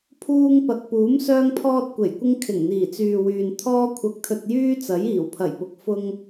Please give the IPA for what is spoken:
pʰ uː˧ ŋ p ɐ˨ k̚ p uː˨˥ m s œː˥ ŋ pʰ ɔː˥ t̚ kʷ e˨˩ j kʷ ɪ˥ ŋ kʰ ɪ˨˩ ŋ n̪ iː˨˩ t͡s yː˨ w yː˨ n t̪ʰ ɔː˥ kʷʰ ɐ˧ k̚ t̪ʰ ɵ˧ t̚ j yː˥ t͡s ɐ˨˥ j iː˨˩ w pʰ ɐ˨˩ j p ʊ˨ k̚ f ʊ˧ ŋ

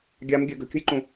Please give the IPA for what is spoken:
ɡʲ a m ɡʲ ɘ ɡ ə̤ kʲ ə̤ j ǃ ũ

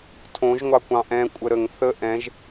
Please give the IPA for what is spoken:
tʰ õ ʒ ŋʷ ɑ kʷ ɑ̃ ʔ ɛ̃ kʷʼ ə ɾ ə ŋ θ ə ʔ ɛ̃ ʒ

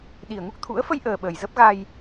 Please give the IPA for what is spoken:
ɗ i˨˩ ə̯ ŋ u˦˥ k̚ t̪ʰ ṵ˧˥ ə̯ f ə˧ j ʔ əː˨˩ ɓ əː˨˩ j z ə˦˥ p̚ ɣ a˧ j

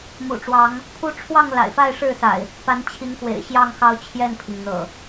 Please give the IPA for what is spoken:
m ṵ˨˩ ʈ͡ʂ w ɑ˨˦ ŋ | pʰ u˦ ʈ͡ʂʰ w ɑ˥˨ ŋ l a̰˨˩ ɪ̯ f a˥˨ ɪ̯ ʂ ɻ̩˥˨ s a̰˨˩ ɪ̯ | p a˨˦ n t͡ɕʰ i˨˦ ŋ x w ḛ˨˩ ɪ̯ ɕ j ɑ˥˨ ŋ x ɑ˦ ʊ̯ t͡ɕʰ j ɛ˥˨ n pʰ i˩ ŋ n̪ ɤ̰˨˩

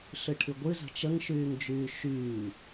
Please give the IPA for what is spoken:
ɬ ɨ ʈʰ ɨ ɡʷ ɨ z ə̤ t͡ʃ ə ŋ ʃ yː ŋ d͡ʒ yː ʃ yː

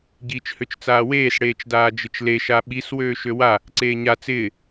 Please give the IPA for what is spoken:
ɟ iː t͡ʃ h ø t͡ʃ t͡s aː w eː s ɽ eː t͡ʃ d aː d͡ʒ ɪ t͡ʃ l e ʃ a ɓ i s w øː ʃ ø w a | ǀ eː ɲ a t͡s ɪː

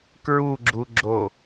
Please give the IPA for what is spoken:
k ɹ u ɡ͡ǁ u ɡ͡ǁ o

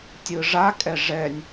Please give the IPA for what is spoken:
tʲ ɯ ʐ a kʼ ɛ ʐ ɛ nʲ

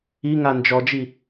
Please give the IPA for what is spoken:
i ŋ a n d͡ʒ ɔ d͡ʒ i

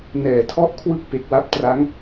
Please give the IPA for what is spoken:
n ɛː˩˦ tʰ ɔ˦˥ ʔ kʰ w ɯ˥˩ k̚ p e˨˩ k̚ w a˦˥ p̚ t r a˦˥ ŋ

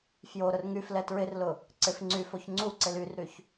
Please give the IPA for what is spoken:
f j o ɾ ʊ r ŋ y f l ɛ t ɹ ɪ r l ʊ | ǀ ɪ f ŋ͡ǀ y f o ç ŋ͡ǀ u ǀ ɪ l y r ɾ y ç

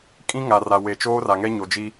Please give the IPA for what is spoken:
kʼ ĩ˦ ŋ a˨ r a˨ w e˨ t͡ʃ oː˦ r a˨ ŋ ɛ˦ ɲ o˨ d͡ʒ i˦

